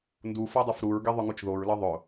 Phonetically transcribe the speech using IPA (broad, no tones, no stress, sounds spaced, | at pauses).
n d u f ɤ dˤ ə f ɾ u ɹ ɡ i ðˤ ʊ ŋ u t͡ʃ ð o ɹ l ɤ ðˤ ʊ